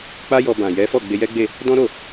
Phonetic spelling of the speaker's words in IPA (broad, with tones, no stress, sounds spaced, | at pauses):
k͡p a˦ j ɔ˧ b ã˨ j ɛ˨˦ f ɔ˦˨ ɡ͡b e˧ j ɛ˦ ɡ͡b e˦˨ | d ɔ̃˦ ɾ o˦˨